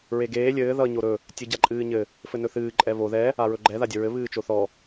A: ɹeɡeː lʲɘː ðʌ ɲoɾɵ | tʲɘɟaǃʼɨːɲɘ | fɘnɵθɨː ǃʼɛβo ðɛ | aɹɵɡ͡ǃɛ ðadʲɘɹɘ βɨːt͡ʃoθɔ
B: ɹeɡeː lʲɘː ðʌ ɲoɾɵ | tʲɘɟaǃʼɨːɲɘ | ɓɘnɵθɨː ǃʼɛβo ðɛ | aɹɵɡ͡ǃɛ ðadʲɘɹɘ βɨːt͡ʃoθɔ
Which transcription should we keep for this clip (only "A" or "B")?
A